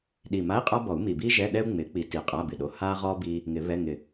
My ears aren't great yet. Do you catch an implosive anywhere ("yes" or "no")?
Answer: yes